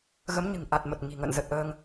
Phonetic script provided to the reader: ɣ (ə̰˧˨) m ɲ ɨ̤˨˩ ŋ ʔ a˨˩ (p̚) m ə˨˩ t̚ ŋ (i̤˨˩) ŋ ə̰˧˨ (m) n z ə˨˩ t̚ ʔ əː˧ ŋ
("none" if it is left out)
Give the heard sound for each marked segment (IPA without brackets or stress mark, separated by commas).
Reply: ə˨˦, t̚, i̤˨˩, none